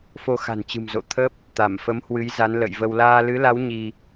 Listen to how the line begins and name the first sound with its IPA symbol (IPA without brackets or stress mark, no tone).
f